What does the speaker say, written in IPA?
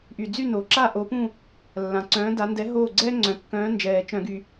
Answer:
ʔ y˨˩ d͡z y˥˨ n o˨˩ ǁ a˥˨ ʔ o˨˥ p ũ˥˨ | lː ã˨˩ ǀ œ̃ː˨˥ d a˨˥ n d ɛ˨˥ ɦ oː˥˨ ɡ͡ǀ ɛː˥ ŋ͡ǀ œ̃˨˩ kː œ̃ː˨˥ n d͡ʒ ɛː˨˩ t͡ʃ œ̃˧˩˧ ɡ y˨˩

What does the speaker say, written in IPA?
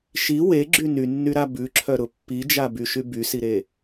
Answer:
ʃ i w e ɡ͡ǁ y n y nː y ɾ a b ʉ ǁʰ œ ɾ ʊ pː i d͡ʒ a b y ʃ y b y s i ɾ e

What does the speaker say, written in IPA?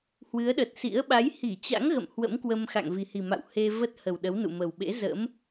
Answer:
h w ɨ˨˦ ə̯ ɗ ə˨˩ t̚ s ḭ˧˥ ə̯ ɓ a˨˦ j h i˧˩ t͡ɕ a̰˧˥ ŋ ɣ ə̰˧˨ m h w ə̰˧˥ m k w ə˧ m x a̰˧˨ ŋ v i˨˩ h i˨˩ m a̰˧˨ w h e˧ v ə˦˥ t̚ h ə˨˩ w ɗ ə˨˦ w n ṵ˧˨ m ə˨˩ w ɓ ḛ˧˥ z ə̰˧˥ m

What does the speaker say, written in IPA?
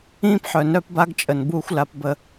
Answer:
ĩː˧ p ħ œ˨ n œ˧ p b a˧ ɡ t͡ʃʼ ə˨ n b uː˧ xʷ l a˧ p b ə˧

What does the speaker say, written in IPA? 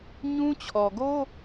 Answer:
ɲ ũ˦ t͡ɕʰ ɔ˨ ɡ o˦

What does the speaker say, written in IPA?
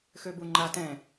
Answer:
x ø b u ŋ͡ǃ a t ɛ̃

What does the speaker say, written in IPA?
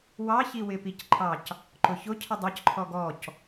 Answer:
w ɑ ç i w ɪ p i c ǃʰ ɑ c | ǃ ʊ ç ʊ cʰ ə dˤ ə˞ c ǃʰ ɔ ɡ ɔ c

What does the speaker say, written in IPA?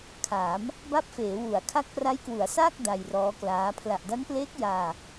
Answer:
kʰ aː˩˦ m | b a˦˥ p̚ f eː˩˦ w u˩˦ a̯ kʰ a˦˥ k̚ p r a˦˥ j k w u˩˦ a̯ s aː˥˩ k̚ d a˧ j r ɔː˦˥ k l aː˦˥ pʰ l a˨˩ ʔ d a˦˥ n p l eː˦˥ k̚ j aː˧

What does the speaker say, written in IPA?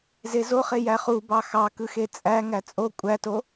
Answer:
z e z o χ e j æ χ u b ɑ x ɑ k ɯ x e t͡sʼ æ ŋ æ t͡sʼ o kʷʼ æ t o

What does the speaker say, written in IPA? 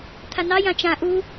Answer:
t̪ʰ a n ɑ j ã t͡ʃ ã ʔ u

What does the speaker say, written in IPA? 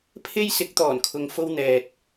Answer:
pʰ e˥ j s ɪ˨˥ k̚ t̪ ɔː˨˩ n kʰ ʊ˨ ŋ f o˧ w n̪ ɛː˨ t̚

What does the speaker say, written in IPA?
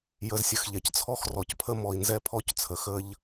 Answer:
j ə˧ z sʲ ə˧ x ʎ ɛ˨ c t͡sʰ ɔ˦ x r ɔ˨ c pʰ ə˦ m ɔ˨ i̯ n z ɛ˦ pʰ ɔ˦ c t͡sʰ ə˨ x ə˦ ʎ

